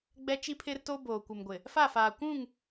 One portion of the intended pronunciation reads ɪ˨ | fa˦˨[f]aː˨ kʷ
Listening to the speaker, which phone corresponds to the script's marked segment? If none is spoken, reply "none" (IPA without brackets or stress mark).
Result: f